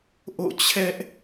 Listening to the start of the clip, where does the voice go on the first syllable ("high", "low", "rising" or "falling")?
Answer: falling